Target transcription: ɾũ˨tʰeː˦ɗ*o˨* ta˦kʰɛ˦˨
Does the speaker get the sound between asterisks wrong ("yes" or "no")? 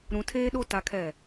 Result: yes